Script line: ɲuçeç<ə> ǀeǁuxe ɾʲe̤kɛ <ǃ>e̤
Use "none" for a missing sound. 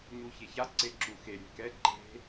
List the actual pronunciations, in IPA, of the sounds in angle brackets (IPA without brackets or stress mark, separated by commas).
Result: a, ǃ